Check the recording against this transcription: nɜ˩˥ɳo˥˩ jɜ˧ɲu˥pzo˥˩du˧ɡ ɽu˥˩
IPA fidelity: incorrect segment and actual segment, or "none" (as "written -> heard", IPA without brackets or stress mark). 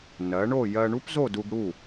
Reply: ɲ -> ɳ